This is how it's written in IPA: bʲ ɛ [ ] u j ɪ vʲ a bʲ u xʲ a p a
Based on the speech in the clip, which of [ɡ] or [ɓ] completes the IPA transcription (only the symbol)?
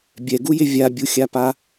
ɡ